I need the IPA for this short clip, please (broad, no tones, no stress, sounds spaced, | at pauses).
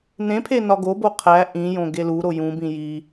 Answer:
n ẽ pʰ e n ɒ ɡ o b o qʰ æ ʔ ĩ j õ ɡ e l u ɾ o j ũ b ĩ j i